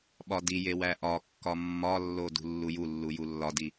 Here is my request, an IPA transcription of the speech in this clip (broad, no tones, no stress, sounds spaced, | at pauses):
ɓ ɒ d i j e w æ ʔ ɒ kː ɒ mː ɒ lː o d ṳ lː u j u lː u j u lː ɒ d i